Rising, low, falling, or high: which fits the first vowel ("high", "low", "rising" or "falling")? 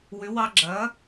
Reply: rising